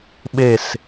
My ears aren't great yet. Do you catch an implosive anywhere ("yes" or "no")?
yes